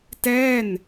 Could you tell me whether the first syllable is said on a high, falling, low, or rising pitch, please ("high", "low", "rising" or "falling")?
falling